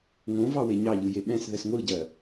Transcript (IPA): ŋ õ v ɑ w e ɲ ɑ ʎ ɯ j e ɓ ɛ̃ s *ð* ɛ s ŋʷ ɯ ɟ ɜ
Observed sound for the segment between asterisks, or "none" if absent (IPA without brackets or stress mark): ð